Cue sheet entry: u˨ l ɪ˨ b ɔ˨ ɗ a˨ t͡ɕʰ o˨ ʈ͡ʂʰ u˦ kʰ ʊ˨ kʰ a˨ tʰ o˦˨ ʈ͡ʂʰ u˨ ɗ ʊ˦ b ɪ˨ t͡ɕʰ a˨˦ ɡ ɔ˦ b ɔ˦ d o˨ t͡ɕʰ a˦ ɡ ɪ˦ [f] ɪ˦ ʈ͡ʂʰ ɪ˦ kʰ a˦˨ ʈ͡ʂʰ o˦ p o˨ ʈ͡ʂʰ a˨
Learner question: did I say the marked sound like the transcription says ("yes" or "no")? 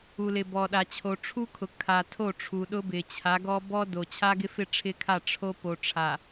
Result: yes